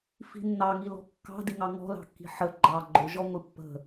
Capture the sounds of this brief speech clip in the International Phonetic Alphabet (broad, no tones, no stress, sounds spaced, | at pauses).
f i̤ nː ɑ ŋ i l ɔ̤ kː ɑ̤ d i ŋ ɑ ŋ ɔ̤ l ɑ̤ kː i̤ ħ ə ɡ͡ǃ ɑ ɡ͡ǃ ʊ ʒ ɔ ŋʷ i pː ə̤